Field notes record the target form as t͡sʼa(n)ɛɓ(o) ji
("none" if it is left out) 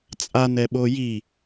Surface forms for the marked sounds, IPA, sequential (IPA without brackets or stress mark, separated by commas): n, o